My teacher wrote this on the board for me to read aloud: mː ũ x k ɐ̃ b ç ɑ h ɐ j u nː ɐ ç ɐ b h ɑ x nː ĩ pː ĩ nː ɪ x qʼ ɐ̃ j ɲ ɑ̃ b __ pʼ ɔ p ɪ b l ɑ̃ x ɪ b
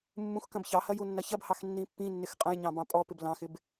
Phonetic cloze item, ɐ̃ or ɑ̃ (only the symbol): ɑ̃